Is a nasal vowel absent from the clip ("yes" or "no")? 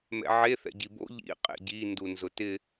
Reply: yes